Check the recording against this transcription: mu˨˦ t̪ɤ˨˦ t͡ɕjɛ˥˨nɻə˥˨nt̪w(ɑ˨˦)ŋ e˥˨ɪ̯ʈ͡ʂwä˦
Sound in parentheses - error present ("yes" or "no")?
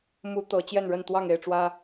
yes